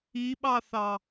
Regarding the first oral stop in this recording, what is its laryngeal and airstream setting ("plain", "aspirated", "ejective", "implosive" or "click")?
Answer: implosive